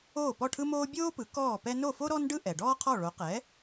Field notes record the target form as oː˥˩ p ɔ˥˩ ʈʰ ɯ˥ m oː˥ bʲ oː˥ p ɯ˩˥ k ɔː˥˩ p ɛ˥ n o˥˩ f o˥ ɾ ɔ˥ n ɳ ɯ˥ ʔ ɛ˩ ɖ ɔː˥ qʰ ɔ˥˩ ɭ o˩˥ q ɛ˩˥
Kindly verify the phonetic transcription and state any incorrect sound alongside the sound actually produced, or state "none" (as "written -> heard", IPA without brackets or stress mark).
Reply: ɳ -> ɖ